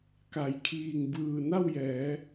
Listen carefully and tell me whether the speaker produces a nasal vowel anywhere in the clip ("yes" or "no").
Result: no